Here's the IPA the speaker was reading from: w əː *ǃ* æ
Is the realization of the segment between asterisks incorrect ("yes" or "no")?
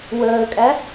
yes